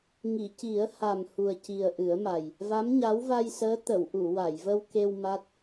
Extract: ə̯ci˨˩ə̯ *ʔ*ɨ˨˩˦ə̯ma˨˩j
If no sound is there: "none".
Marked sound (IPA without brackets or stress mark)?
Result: ʔ